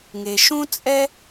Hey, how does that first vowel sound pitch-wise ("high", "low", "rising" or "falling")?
low